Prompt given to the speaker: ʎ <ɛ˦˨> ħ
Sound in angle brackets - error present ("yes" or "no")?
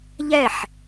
no